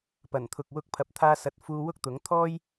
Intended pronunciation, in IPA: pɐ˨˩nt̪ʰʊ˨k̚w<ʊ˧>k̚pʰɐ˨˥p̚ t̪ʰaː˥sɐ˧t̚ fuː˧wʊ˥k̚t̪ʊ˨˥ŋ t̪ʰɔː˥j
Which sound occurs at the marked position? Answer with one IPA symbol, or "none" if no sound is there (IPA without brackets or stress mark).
ʊ˧